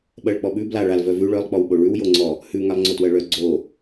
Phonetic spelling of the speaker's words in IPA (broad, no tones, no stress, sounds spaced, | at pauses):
ɓ ɜ ɭ k͡p ɔ ɓ ʉ b l a ɭ a l v œ v ʉ ɭ œ lˠ k͡p ɔ w ɓ o ɭ ʉ w j o ŋ͡ǀ ɔ | h ʉ ŋ a lˠ ŋ͡ǀ o t w ɜ ɭ œ ɡ͡ǀ o